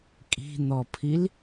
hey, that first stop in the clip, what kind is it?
ejective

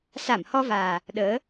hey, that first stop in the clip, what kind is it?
implosive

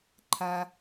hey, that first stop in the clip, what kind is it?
click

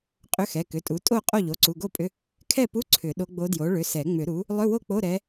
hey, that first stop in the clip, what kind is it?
ejective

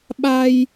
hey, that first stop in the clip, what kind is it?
implosive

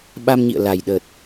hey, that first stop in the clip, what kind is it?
implosive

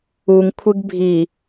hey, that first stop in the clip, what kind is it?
aspirated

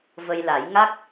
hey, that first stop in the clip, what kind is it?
plain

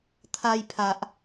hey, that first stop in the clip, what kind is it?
aspirated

